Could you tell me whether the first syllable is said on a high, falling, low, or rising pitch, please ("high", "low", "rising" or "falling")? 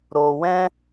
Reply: low